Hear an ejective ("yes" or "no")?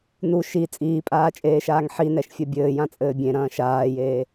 yes